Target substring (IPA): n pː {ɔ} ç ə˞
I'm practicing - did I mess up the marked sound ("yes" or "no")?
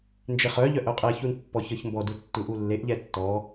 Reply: no